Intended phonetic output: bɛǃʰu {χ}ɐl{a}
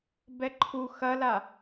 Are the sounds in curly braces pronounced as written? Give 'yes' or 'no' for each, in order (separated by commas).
no, yes